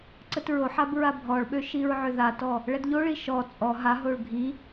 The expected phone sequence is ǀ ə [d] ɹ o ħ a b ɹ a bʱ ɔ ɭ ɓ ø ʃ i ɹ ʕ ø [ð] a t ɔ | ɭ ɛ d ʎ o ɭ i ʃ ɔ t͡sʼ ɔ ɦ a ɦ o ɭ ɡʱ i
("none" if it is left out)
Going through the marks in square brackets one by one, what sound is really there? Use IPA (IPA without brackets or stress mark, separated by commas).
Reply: t, ð